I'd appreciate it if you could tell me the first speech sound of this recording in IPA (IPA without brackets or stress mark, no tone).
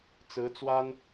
t͡s